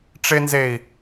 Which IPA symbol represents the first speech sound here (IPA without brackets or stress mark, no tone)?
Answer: ʈ͡ʂ